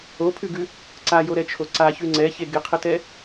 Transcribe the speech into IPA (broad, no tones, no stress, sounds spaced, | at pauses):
o pʰ ʉ ɡ ʉ | ǀ a j o ɾ ɛ t͡ʃʰ o ǀ a ç ʉ ŋ͡ǀ ɛ ç e ɡ ɪ qʰ ə t ɛ